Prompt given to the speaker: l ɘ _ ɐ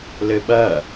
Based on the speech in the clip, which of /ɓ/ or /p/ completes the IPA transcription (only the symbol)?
ɓ